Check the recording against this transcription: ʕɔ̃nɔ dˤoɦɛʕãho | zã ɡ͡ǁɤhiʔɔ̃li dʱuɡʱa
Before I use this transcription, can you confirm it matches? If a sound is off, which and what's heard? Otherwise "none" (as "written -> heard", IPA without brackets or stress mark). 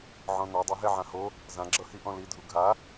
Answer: none